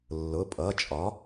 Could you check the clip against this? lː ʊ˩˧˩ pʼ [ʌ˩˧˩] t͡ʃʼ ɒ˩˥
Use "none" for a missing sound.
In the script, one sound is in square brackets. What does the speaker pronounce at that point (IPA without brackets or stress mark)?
ʌ˩˧˩